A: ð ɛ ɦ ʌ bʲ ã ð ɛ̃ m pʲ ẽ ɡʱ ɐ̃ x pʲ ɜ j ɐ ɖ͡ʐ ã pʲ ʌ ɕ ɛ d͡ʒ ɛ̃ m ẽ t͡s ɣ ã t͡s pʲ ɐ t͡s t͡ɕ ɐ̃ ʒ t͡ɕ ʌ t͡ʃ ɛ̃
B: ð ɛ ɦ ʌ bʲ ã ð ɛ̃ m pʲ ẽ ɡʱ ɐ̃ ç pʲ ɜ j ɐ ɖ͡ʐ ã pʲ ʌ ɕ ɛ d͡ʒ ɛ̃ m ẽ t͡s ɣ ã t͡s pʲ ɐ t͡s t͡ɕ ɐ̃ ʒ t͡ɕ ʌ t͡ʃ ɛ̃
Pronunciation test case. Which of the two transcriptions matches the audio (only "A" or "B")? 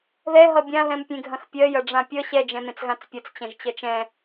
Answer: A